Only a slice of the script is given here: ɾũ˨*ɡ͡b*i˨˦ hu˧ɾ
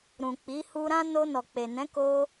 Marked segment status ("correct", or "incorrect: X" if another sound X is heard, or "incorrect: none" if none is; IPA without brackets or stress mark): incorrect: k͡p